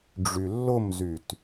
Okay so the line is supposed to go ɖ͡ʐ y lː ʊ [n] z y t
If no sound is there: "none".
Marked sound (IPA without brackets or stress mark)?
m